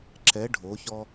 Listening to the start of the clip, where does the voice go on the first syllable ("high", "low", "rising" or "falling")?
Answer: rising